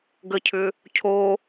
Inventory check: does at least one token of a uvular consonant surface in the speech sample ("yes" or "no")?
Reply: no